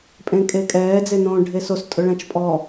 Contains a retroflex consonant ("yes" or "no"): yes